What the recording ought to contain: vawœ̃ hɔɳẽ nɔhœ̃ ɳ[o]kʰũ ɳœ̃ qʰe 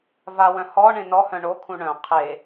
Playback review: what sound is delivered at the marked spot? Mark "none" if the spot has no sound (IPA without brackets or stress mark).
o